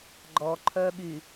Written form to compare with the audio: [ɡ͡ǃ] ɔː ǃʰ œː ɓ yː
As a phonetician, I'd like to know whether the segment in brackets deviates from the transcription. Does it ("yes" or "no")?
no